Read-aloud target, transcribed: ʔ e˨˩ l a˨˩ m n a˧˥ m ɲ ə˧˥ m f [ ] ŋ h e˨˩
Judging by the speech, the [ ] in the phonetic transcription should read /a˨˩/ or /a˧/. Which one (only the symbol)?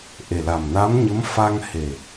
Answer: a˧